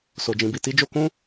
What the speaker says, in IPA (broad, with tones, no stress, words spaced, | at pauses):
so˨d͡ʒĩ˨bi˨ ti˧d͡ʒo˧kũ˦